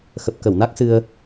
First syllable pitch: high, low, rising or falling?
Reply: low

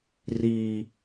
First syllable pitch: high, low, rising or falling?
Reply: low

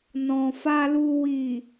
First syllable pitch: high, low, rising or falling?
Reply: low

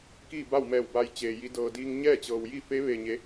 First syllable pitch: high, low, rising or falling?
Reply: falling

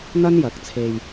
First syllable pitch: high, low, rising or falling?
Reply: high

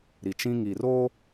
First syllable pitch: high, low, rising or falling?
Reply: low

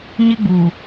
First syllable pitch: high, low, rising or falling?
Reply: high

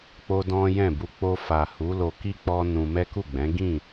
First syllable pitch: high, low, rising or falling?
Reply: high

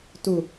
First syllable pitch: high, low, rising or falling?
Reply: low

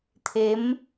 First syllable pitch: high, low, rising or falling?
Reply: rising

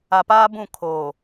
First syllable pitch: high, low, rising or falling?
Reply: low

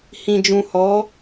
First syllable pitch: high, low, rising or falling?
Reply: low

